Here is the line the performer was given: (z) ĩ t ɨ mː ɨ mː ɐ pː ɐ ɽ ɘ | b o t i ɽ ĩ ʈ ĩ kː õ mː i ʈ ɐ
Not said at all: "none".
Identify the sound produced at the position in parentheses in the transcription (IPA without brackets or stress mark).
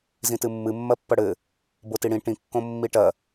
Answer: z